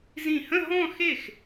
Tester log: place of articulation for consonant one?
alveolar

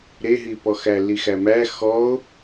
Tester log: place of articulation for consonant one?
alveolar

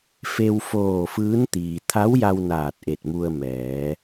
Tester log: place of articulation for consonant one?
labial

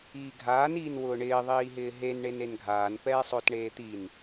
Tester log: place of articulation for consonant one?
velar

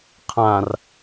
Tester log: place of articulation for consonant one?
uvular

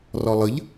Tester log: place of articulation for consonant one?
alveolar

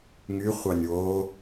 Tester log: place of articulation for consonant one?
velar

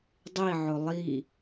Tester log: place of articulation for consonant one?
alveolar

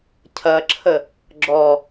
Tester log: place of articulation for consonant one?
palatal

